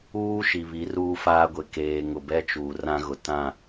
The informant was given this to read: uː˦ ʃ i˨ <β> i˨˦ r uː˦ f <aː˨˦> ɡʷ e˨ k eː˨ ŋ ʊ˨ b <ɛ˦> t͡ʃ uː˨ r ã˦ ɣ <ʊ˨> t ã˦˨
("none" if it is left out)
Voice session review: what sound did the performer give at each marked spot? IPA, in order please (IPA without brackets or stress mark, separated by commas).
β, aː˦, ɛ˦, ʊ˨